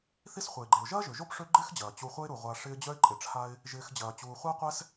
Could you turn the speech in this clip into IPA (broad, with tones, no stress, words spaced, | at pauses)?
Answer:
θi˦sχʷɛ˩ɪ̯ɡ͡ǃe˩ʊ̯ ʒɐː˥ʒø˩ ʒo˥pʂø˦ ɡ͡ǃɪː˥xd͡ʑɐː˩ t͡ɕu˨χʷɐ˦ɪ̯ɾu˩ʁʷa˨ ʂɪː˦ d͡ʑœ˥ɪ̯ǃʼɪ˨ʈ͡ʂʰa˥ɪ̯ | ʒɪː˨xd͡ʑɐː˩t͡ɕuː˩ χʷa˦qʷɛ˦s